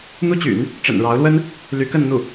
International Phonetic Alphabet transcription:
n̪ u˥ t͡ɕ y̰˨˩˦ n | ʈ͡ʂ ə̰˨˩ n ɻ ɑ˧˥ ʊ̯ l w ə˥ n | l y˧˥ k ə˥˧ n n̪ u˥˩

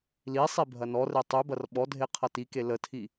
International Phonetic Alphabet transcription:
l i sˤ i bʱ ɐ n ɔ r e tˤ ʉ b ɐ r ɓ ɔ dʱ e qʰ ʌ t i k e l ə tʰ i

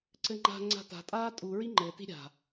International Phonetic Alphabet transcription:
ǀ ɘ ŋ͡ǃ a̤ ŋ͡ǀ a̤ t a̤ tʼ aː tʼ u ɹ i ŋ͡ǃ ɘ t i̤ ɾʲ a̤

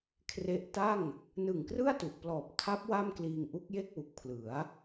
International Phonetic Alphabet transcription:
kʰ r e˦˥ ʔ t a˥˩ ŋ | n ɯ˨˩ ŋ k r ɯ˥˩ a̯ t u˨˩ ʔ p l ɔː˨˩ p̚ tʰ a˦˥ p̚ w a˥˩ m k l iː˧ ŋ ʔ u˦˥ k̚ j e˥˩ k̚ w u˨˩ k̚ pʰ l ɯ˩˦ a̯

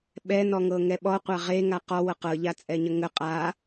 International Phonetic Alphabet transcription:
ɓ ɛ n ɔ ŋ ɤ ŋ ɛ ɓ ɔ qʷ a ʁ e ŋ a q ɔ w ɤ q ɤ ʎ a t͡sʼ ɛ ɲ ə ŋ ə qʼ a

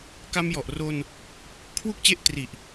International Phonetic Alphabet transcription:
k a˧ m j ɔ˨˩ ʔ r o˧ n | kʰ w u˥˩ k̚ t͡ɕ e˥˩ ʔ t r i˨˩ ʔ

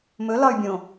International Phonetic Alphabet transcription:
m ɵ l ɒ y̯ bʲ õ

